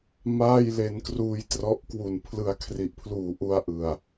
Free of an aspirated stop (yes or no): no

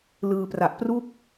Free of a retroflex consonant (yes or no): yes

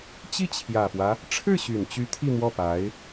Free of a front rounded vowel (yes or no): no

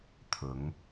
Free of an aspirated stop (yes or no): no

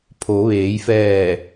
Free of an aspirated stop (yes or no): no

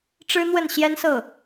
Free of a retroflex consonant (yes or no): no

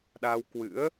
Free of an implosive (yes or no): no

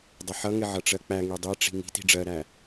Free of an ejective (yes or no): yes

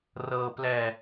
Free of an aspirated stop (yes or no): yes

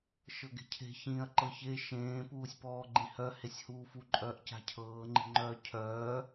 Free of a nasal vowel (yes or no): no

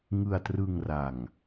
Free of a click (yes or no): yes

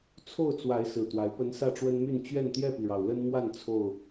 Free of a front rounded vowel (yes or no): no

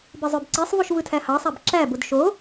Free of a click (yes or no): no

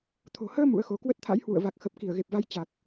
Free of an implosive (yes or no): yes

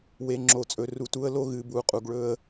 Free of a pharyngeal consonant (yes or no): yes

